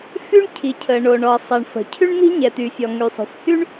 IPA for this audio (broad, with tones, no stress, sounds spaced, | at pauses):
f y˥ ɳ cʰ i˩ cʰ ə˩ ɳ o˩ ɳ ɔ˩ ɐ̯ sˤ ɛ˩ ɳ f ə̤˩ cʰ y˥ ɳ n̪ i̤˥ ɲ ɛ˩ t̪ y˩ fʲ ɔ˩ ŋ y˩ sˤ o̤˩ f h y˥ ɳ